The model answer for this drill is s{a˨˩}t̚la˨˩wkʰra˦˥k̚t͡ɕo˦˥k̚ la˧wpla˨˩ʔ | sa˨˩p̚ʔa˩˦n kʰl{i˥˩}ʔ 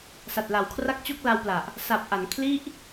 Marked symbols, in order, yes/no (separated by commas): yes, yes